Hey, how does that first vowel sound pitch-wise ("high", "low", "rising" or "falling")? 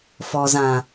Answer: low